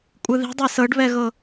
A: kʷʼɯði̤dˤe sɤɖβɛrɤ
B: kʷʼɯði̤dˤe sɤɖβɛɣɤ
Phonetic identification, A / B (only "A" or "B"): B